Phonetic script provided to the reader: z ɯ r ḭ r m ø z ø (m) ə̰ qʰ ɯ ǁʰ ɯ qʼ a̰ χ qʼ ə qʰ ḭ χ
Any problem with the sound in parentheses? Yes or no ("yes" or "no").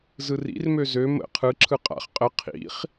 no